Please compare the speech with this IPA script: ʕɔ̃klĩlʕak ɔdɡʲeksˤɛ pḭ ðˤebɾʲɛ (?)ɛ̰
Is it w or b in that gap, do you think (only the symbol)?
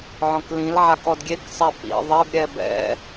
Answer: b